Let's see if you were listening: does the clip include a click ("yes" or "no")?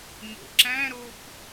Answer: yes